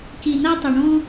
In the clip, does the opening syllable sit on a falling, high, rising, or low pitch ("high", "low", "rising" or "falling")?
low